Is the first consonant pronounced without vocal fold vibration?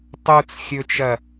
yes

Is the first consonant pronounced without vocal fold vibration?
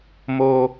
no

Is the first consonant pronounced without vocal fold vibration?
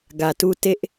no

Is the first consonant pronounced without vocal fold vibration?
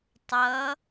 yes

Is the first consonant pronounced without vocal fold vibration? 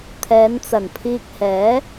yes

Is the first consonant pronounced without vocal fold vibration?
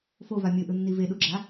yes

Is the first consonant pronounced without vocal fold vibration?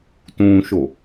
yes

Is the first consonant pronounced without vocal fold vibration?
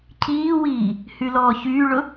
yes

